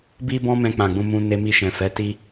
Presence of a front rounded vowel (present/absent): absent